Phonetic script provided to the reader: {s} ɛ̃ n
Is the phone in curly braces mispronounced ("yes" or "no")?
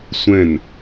yes